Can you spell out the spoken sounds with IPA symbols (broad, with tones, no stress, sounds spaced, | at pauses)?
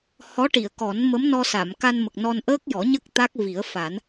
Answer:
h ɔ˧˥ ʈ i˨˩˨ ə̯ k ɔ˨˩˦ n m ə˧˥ m n ɔ˧ s a˨˩˨ m k a˧ n m ə˨˩ k̚ n ɔ˧ n ʔ əː˦˥ k̚ j ɔ˨˩˦ ɲ ə˦˥ k̚ t̪ a˦˥ k̚ v i˨˩˦ ə̯ f a˨˩˦ n